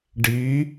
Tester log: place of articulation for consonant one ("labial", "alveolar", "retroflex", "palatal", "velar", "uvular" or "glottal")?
retroflex